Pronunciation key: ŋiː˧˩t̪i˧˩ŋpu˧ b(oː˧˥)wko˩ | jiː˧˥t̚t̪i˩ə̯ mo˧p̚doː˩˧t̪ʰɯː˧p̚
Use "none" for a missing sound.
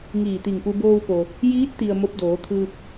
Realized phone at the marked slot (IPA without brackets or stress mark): oː˧